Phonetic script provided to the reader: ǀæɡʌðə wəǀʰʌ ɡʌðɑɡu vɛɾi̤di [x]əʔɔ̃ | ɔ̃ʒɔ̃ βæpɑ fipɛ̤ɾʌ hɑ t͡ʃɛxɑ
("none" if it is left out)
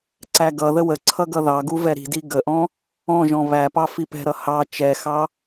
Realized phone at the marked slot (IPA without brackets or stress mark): ɡ